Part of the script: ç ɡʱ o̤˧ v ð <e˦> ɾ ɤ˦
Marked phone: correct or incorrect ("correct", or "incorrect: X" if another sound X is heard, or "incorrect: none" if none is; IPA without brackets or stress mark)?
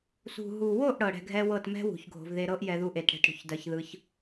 incorrect: e˧